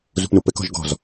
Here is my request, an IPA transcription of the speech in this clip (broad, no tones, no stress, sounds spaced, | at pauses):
z ṳ p n u p ɘ k ɔ̤ ʒ ɡ ɔ̤ z